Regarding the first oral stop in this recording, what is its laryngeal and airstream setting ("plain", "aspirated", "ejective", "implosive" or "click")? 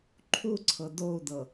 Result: click